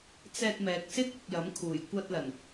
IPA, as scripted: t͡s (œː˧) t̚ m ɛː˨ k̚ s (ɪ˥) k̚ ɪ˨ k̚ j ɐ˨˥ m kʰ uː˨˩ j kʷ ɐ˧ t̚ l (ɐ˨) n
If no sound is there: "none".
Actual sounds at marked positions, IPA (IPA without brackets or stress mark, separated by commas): ɛː˧, ɪ˥, ɐ˨˩